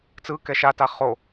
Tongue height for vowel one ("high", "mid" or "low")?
high